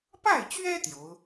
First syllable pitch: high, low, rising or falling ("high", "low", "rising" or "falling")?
falling